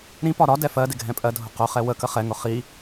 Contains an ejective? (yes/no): yes